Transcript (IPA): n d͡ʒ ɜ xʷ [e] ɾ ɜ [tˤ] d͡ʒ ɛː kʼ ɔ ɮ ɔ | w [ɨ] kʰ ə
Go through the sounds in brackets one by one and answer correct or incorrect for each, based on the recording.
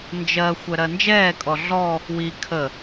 incorrect: ɛ, incorrect: n, incorrect: i

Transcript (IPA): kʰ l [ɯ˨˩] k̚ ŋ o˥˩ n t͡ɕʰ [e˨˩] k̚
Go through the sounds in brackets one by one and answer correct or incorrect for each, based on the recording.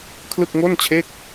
incorrect: ɯ˥˩, incorrect: e˥˩

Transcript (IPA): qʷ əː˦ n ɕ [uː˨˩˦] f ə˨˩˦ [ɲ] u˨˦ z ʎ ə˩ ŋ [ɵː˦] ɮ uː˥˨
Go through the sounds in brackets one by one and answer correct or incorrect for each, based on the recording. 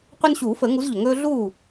correct, incorrect: ŋ, correct

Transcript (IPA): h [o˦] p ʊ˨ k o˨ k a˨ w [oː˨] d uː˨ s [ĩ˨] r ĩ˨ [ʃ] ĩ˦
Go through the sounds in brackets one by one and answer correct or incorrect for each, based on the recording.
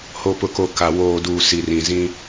incorrect: o˨, correct, incorrect: i˨, incorrect: z

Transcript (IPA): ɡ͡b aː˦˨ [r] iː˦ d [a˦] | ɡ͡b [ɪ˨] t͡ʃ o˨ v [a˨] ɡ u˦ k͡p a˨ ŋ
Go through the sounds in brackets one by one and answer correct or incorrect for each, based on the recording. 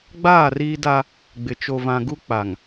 correct, correct, correct, incorrect: ã˨

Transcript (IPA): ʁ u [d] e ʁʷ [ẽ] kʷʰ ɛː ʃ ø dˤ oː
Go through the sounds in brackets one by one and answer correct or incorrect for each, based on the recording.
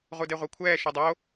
correct, incorrect: e

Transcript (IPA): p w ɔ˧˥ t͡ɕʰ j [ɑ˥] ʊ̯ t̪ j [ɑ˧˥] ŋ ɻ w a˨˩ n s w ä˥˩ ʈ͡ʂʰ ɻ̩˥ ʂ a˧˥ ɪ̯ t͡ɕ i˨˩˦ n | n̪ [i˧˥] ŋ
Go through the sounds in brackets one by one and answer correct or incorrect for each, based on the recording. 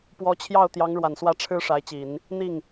incorrect: ɑ˥˩, correct, incorrect: i˥˩

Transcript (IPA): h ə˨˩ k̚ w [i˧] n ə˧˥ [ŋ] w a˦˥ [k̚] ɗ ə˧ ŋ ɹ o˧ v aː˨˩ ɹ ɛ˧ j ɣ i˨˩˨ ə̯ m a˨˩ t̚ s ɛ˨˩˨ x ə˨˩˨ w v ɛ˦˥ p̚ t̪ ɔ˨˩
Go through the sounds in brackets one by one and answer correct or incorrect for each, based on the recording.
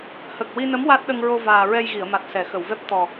correct, incorrect: m, incorrect: t̚

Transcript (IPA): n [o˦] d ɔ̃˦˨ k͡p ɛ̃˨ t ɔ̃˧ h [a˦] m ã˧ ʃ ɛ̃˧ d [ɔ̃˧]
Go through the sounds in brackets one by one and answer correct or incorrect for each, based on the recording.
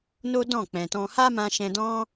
correct, correct, incorrect: ɔ̃˦

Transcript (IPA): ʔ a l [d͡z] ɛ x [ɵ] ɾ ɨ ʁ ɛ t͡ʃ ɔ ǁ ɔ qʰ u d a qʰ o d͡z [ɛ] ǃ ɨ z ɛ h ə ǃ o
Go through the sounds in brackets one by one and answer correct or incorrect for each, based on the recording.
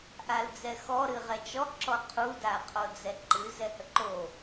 correct, incorrect: ɔ, correct

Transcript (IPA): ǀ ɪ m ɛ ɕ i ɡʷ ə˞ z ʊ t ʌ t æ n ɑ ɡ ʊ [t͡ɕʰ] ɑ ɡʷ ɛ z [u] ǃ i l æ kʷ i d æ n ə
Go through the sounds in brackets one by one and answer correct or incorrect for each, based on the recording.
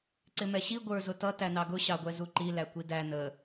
incorrect: ɕ, correct

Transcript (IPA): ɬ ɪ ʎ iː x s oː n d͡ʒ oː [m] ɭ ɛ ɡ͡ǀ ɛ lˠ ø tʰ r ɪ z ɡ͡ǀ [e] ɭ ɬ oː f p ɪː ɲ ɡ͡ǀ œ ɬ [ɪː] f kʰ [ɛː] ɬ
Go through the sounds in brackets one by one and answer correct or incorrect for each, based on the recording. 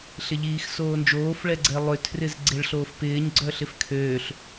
incorrect: f, correct, incorrect: ɪ, incorrect: øː

